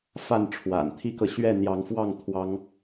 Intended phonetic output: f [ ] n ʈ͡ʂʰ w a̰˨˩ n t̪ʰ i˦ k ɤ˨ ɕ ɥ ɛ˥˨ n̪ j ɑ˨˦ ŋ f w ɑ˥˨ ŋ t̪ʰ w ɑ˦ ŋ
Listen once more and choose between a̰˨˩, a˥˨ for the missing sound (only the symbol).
a˥˨